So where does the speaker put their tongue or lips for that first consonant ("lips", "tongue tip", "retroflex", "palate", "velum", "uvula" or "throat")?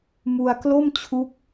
lips